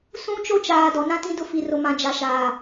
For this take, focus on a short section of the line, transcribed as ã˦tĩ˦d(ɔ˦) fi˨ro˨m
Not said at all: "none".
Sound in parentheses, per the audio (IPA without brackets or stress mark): ʊ˦